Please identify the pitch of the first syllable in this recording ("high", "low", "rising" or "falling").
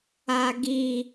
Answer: high